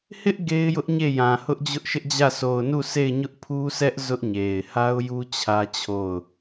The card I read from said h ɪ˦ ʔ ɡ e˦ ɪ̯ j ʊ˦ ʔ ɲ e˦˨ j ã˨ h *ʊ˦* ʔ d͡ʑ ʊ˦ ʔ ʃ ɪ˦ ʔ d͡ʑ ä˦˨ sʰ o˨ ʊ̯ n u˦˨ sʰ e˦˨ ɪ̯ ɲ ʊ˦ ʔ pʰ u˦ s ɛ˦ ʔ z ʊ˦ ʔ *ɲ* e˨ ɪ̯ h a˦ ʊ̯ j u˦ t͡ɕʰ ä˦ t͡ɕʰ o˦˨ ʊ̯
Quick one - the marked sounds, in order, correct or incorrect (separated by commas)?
correct, correct